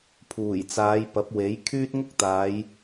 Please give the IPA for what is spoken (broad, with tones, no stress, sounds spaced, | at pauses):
pʰ uː˨˩ j t͡s aː˨˧ j p ɐ˨˥ p̚ w e˨˥ j kʰ yː˥ t̚ ŋ ʊ˥ k̚ t̪ aː˨˧ j